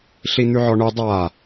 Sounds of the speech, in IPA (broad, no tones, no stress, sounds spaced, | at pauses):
ɬ i n̪ ʉ ʕ ɔ ɳ ʉ dˤ a